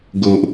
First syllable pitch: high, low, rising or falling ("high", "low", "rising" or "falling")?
low